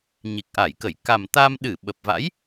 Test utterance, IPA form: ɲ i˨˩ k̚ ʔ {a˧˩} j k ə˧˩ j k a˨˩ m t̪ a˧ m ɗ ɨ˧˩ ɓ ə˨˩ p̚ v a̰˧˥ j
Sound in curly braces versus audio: correct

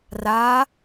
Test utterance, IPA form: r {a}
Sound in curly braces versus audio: correct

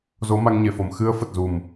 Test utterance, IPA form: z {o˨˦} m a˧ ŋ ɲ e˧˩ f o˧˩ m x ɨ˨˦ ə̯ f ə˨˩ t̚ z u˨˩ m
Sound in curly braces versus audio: correct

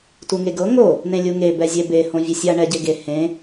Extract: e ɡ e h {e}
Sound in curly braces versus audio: incorrect: ẽ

